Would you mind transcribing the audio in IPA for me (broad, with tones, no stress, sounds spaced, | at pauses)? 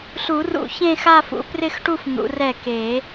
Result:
ɬ u˨˩˦ r ṵ˨˩˦ ç ẽ˥˧ x a˥˧ f ṵ˨˦ p r ɪ˥˧ x ʈ u˥˧ f n̪ ṵ˨˦ r ɛ˥˩ k e˨˩˦